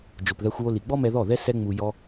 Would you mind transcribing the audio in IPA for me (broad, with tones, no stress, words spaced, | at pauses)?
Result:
d͡ʒo˨pðæ˧xʷwo˧ li˨ ɡ͡bɔ˦mɛ˧ðɔ˦˨ðɛ˦ sɛ˦ŋ͡mu˧ jɔ˧